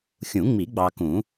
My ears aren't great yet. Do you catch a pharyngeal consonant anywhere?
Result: no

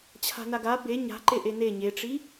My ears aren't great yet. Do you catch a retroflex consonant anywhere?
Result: yes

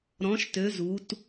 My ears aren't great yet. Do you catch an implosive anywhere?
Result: no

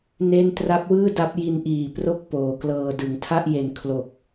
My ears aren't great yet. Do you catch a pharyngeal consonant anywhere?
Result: no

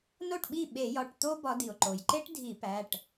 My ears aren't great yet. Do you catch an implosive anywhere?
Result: yes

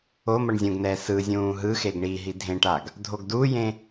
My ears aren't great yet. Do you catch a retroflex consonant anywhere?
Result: yes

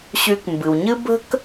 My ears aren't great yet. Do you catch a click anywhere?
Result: no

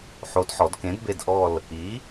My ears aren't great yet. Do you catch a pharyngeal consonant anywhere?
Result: yes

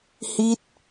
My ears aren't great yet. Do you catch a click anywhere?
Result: no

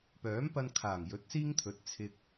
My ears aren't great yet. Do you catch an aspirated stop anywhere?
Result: yes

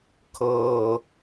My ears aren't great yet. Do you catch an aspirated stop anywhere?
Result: yes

